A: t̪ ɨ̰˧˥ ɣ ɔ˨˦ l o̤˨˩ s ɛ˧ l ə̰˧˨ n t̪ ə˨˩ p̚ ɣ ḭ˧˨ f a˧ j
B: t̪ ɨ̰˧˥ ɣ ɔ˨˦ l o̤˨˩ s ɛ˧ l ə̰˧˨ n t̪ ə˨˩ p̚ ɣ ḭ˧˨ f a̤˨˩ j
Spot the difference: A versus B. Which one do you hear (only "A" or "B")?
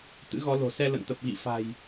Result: B